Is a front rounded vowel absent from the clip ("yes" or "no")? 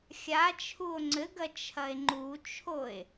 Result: yes